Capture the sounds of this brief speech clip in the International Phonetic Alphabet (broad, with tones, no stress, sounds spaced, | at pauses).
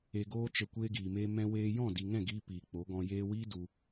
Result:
e˧ ɡ oː˦ t͡ʃ ə˧ kʷ eː˧ ɡ iː˨ m eː˧ m ɛ̃˧ w eː˧ j ɔ̃˦˨ d i˨ ŋ ɛ̃˦˨ ɡ iː˧ p iː˨ k͡p o˨˦ ɡ ɔ̃˧ j eː˧ w iː˦ d u˧